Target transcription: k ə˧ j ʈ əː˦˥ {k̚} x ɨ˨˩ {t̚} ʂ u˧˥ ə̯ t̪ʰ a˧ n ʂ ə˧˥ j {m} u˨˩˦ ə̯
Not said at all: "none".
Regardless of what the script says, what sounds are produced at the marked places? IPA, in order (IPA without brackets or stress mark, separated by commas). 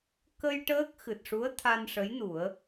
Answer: k̚, t̚, n